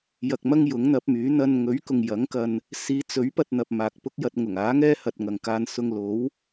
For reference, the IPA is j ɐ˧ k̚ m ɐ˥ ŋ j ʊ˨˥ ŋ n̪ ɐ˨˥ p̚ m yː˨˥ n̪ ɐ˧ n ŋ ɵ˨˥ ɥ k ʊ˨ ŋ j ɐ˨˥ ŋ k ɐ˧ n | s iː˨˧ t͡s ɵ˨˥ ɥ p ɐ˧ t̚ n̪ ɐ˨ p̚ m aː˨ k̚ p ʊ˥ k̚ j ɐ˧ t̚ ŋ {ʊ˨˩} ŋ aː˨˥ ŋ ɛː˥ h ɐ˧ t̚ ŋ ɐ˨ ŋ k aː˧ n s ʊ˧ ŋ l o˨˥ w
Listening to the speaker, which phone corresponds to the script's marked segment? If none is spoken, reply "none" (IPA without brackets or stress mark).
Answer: ʊ˨˩